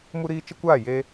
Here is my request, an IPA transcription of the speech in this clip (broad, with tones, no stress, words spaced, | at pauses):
mu˦ɾiː˦ t͡ʃə˦kʷaː˦˨ je˦